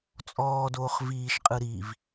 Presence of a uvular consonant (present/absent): present